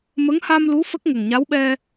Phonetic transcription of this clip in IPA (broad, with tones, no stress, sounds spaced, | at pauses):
m ə˧˥ ŋ h a˧ m l u˧˥ f ə˦˥ k̚ ŋ ə˨˩ ŋ ɲ a˧˥ w ɓ ɛ˧